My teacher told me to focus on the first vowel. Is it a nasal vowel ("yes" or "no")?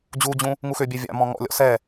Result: no